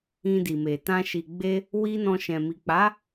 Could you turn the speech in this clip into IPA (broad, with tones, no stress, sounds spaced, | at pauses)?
ĩ˧ d i˨ m e˨ t ã˧ ʃ i˨ ɡ͡b e˧ | w i˦ n ɔ̃˧ ʃ ɛ̃˨ m i˨ k͡p a˨˦